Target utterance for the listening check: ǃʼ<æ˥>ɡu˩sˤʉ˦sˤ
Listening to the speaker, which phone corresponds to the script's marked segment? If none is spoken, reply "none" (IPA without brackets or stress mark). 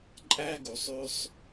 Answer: æ˥